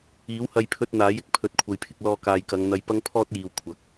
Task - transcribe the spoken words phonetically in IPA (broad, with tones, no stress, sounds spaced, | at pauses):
iː˨˥ w h ɐ˧ j pʰ ɵ˧ t̚ n̪ aː˨˥ j ɪ˨ k̚ pʰ ɵ˨˥ t̚ kʷʰ ɐ˨ j pʰ ɪ˧ k̚ l ɔː˧ k aː˨ j k ɐ˨˧ ŋ n̪ ɐ˧ j p ɐ˥ ŋ pʰ ɔː˥ t̚ j iː˨ w kʷʰ ɐ˨ k̚